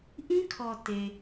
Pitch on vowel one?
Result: high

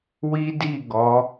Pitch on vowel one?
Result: high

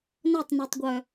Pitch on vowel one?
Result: falling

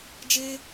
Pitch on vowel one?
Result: high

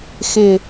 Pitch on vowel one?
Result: low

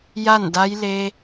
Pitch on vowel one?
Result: falling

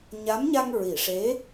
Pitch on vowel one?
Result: rising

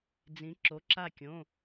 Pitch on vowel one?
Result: rising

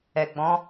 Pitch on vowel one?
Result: low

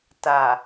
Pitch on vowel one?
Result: low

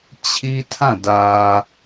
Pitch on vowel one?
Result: high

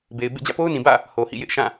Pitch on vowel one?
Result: low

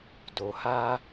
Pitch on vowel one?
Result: low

